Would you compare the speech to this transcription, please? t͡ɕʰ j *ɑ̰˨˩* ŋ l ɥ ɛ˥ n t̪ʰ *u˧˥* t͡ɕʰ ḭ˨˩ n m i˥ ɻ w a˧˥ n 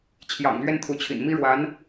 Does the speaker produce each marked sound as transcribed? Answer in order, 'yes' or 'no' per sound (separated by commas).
yes, yes